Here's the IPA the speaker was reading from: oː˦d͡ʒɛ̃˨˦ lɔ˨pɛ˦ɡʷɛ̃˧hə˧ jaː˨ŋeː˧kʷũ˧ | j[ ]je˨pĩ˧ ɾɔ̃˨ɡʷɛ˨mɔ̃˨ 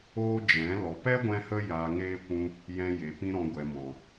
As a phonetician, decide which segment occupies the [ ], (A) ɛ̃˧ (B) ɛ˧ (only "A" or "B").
A